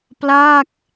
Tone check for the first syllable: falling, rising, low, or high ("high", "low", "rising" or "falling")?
falling